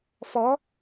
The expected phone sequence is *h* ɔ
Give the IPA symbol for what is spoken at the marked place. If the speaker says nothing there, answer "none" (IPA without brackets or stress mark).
f